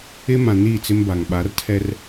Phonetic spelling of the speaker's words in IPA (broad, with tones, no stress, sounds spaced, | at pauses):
ɪ˦ m ã˨ n iː˦˨ t͡s ɪ˦ m b a˨ ŋ ɓ a˨˦ r tʰ ɛ˦ r